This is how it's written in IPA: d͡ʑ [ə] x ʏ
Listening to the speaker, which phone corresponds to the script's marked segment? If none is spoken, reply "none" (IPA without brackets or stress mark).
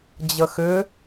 ə